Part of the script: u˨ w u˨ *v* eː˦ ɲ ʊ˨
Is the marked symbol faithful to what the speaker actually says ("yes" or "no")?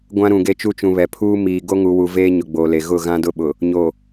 yes